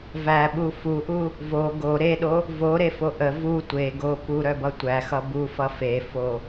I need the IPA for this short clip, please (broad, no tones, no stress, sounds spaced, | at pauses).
v æ ɓ u f u ʔ u | v o ɡ o ɾ e ɗ o | v o ɾ e f o ʔ ə v u tʷ e ɡ o p u ɾ œ b ʌ tʷ æ x ʌ b u f ʌ f e f o